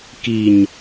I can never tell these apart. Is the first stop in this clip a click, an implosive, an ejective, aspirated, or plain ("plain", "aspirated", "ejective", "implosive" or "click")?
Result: plain